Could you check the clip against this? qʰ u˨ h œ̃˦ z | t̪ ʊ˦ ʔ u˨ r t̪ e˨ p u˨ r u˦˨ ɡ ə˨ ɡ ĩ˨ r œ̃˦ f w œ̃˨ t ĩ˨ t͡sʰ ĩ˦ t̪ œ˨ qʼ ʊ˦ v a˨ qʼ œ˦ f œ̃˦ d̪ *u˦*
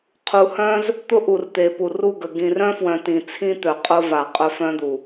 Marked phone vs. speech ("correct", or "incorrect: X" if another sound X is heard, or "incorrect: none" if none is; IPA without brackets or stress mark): incorrect: u˨